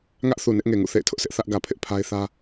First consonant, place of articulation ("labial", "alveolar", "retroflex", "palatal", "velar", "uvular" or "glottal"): velar